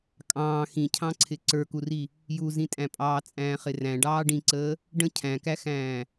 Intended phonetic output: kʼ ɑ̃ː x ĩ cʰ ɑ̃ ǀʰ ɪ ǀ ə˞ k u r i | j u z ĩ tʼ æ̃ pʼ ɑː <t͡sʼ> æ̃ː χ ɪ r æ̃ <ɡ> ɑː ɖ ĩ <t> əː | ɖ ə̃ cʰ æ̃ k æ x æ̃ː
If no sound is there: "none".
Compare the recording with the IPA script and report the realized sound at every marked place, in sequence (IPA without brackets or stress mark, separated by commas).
t͡sʼ, ɖ, ǀ